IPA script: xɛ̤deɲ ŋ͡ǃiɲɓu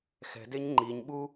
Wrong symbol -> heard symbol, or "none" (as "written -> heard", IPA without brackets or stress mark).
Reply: none